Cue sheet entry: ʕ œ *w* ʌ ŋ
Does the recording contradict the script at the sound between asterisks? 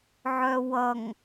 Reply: no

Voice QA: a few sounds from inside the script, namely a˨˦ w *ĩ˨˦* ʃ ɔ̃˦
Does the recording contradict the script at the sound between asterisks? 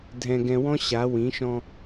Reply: no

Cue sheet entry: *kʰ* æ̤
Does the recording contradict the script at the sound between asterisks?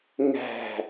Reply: yes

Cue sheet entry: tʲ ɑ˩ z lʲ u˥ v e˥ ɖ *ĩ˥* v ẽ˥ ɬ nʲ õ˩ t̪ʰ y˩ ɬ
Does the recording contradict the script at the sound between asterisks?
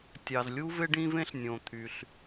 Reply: no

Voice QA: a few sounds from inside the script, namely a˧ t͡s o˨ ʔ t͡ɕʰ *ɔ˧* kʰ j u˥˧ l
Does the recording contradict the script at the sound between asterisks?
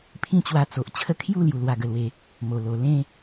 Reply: yes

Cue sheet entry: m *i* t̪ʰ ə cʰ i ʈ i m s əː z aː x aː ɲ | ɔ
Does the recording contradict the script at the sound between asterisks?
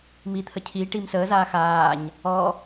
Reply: no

